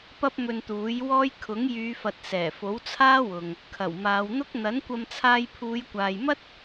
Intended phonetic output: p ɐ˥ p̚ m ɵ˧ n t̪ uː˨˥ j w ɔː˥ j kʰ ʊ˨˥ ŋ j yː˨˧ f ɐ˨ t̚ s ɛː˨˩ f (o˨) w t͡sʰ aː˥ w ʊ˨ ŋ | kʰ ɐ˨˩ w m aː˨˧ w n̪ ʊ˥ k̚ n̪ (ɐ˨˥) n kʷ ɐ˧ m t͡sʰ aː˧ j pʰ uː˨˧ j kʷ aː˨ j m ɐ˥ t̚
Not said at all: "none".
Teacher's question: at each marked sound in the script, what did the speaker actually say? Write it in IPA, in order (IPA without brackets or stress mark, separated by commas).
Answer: o˨˥, ɐ˨˥